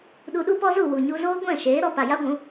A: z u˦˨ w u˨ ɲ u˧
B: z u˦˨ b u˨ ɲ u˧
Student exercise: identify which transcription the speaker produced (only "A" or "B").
A